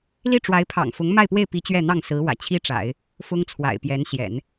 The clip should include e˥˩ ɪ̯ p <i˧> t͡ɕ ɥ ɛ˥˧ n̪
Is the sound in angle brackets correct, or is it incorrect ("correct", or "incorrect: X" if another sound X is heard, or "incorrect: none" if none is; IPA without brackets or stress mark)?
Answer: incorrect: i˧˥